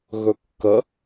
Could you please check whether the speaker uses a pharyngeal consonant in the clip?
no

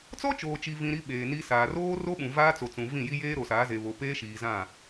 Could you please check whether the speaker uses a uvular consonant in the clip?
no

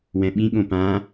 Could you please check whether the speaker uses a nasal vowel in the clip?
yes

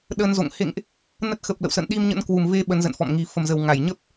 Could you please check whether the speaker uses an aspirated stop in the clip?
no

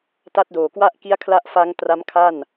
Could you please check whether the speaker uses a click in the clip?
no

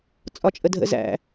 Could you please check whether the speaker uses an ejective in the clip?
yes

